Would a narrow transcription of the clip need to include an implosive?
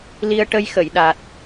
yes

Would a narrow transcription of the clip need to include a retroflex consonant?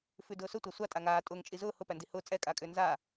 no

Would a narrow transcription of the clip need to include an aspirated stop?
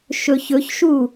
no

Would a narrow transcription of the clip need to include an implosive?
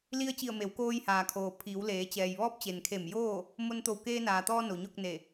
no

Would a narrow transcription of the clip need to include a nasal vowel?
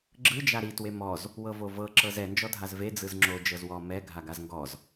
no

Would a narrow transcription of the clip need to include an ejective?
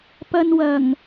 no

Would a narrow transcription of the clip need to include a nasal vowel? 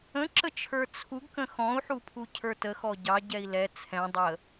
yes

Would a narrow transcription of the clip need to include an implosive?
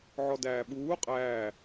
yes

